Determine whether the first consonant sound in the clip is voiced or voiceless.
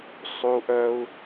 voiceless